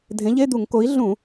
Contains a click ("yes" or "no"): no